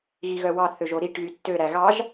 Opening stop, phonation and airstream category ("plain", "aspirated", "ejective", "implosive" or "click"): plain